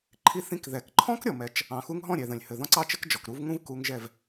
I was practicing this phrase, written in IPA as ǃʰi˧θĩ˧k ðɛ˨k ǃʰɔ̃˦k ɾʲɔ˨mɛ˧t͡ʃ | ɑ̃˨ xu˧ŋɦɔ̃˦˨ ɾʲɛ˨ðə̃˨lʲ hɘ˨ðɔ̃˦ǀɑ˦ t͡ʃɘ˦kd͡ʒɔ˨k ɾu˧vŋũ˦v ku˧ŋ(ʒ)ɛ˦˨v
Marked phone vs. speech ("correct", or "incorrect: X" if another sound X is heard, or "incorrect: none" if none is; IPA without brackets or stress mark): correct